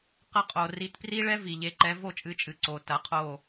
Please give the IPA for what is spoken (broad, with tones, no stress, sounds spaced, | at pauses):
q ɐ˧ qʼ o˩ r i˩˥ t p r i˥ ɭ ɛ˥ v i˩ ʎ e˩˥ ǃ ɛ˩˥ v o˥˩ t͡ʃʼ ɨ˩˥ t͡ʃʼ ɨ˩ ǀ o˩ t ɐ˩˥ qʰ o˥˩